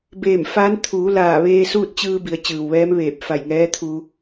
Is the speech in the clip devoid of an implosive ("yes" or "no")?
yes